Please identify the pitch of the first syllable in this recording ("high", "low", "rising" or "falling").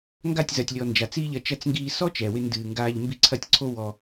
falling